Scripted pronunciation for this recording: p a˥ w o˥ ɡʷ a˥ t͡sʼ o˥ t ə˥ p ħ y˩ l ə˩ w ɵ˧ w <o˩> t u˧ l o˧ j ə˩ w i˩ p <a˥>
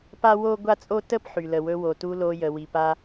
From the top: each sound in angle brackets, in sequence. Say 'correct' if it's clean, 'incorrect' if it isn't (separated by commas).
correct, incorrect